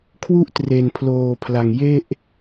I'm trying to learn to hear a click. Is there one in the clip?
no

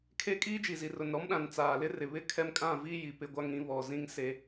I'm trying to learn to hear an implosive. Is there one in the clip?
yes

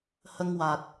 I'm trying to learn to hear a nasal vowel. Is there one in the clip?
no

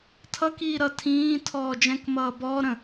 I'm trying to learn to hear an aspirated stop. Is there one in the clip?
yes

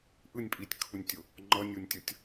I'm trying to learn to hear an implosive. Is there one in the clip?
no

